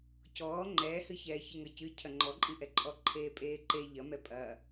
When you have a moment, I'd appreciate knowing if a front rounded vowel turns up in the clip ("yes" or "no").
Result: no